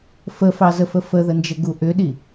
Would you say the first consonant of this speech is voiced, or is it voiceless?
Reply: voiceless